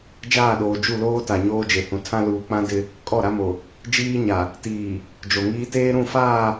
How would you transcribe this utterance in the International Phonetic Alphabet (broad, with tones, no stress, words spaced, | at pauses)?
d͡ʒaː˦˨ɗoː˨ d͡ʒu˦˨loː˦ta˨ ɲoː˦d͡ʒe˨hũ˨ tʰã˦ luː˨k͡pã˦ dɪ˦ | kʼɔ˦˨ɾa˦mo˨ | d͡ʒiː˦ɲa˨ | tiː˨ | d͡ʒo˨ŋiː˦ teː˦ɾũ˦˨faː˦˨